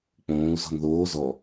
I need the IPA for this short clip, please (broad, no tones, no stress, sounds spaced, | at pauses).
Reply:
k͡p õː u̯ z ɔ̤ n ð oː z ɔ